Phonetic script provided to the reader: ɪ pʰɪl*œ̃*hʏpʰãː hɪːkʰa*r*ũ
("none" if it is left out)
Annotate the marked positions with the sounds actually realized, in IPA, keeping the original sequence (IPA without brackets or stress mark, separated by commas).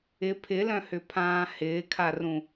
œ̃, r